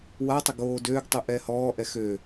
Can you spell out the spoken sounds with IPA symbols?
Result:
watˤə ɡoːdøːɡtˤu ʔɛːhɔːʔɛ xø

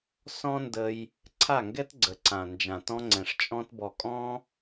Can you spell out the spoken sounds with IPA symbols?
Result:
sɔ̃˦ndə˧j | ǀʰa˦˨ŋɡɛ˦t ɡ͡ǀə˨ǀã˨ nd͡ʒã˨tɔ̃˦ŋ͡ǀɛ̃˨ʂ t͡ʃʼɔ̃˦tbɔ˧ kʼɔ̃˦

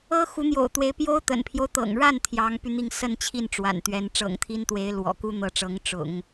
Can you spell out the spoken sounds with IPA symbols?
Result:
ɤ˥ xu˧˥n̪jo̰˨˩ʊ̯t̪we˧˥ɪ̯ pjo˥ʊ̯ t̪ə̰˨˩npʰjo˦ʊ̯t̪ɤ̰˨˩ŋɻa˥˩n t̪ʰjɑ˧˥ŋpy˧n̪i˥˧ŋ sə˥˧nt͡ɕʰi˥˩n ʈ͡ʂwa̰˨˩nt̪ɥɛ˧˥n ʈ͡ʂɤ̰˨˩ŋt̪ʰi˥nt̪we˧˥ɪ̯ lwɔ̰˨˩ku˥n̪ɤ˧˥ʈ͡ʂɤ˧˥ŋ ʈ͡ʂʊ̰˨˩˦ŋ

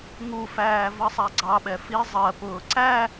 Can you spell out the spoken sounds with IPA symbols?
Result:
ŋufæː vʌsˤæɡ͡ǀɑɓɛ fi zˤɜpʊː ǀæ

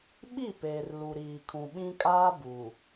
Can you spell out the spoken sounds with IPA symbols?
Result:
ɓi˦˨peː˨r lu˨ɾiː˨ kʰũ˨ɓĩ˦ kʼaː˦ buː˨

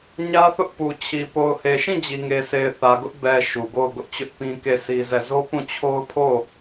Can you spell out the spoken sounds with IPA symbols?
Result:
ɲä˦θʊ˦ʔ pu˨t͡ɕʰi˨ po˨ʊ̯he˨ʃĩ˦˨ d͡ʑi˨ŋe˨sʰe˨ɪ̯ θä˨ɡʊ˦ʔ bɛ˨ ʃu˨ɡo˦˨ʊ̯ɡʊ˦ʔt͡ɕʊ˦ʔ pĩ˦ke˦˨si˦zɛ˦˨ zo˦pũ˦˨t͡ɕʰo˦ʊ̯ pʰo˦˨

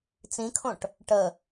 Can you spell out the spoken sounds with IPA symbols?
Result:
t͡sĩkʰõʈ | ʈə

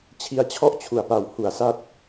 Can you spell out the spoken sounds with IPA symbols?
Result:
t͡ɕʰi˧a̯t͡ɕʰɔ˥˩ʔ t͡ɕʰu˨˩a̯pa˨˩w hu˨˩a̯sa˦˥t̚

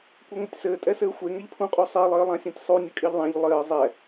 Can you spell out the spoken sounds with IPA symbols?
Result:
kʷɛŋʷɘtʲsɘː tʼɛsɘːxʷe ŋɛʎpʰũqʼu sˤelˠɘːlˠãsʲãtʲ sˤu nʲəkʼiʎðˤãʎ lˠɘː zˤɛ

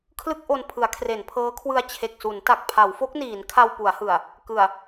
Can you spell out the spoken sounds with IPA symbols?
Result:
kʰlɯ˥˩k̚ʔo˧n pʰɯ˩˦a̯kʰre˩˦npʰɤː˦˥kʰwɯ˧a̯ t͡ɕʰe˨˩k̚su˩˦n ta˨˩k̚pʰa˩˦wfo˦˥k̚niː˩˦n kʰa˧wpu˩˦a̯hɯ˨˩a̯ | kɯ˨˩a̯

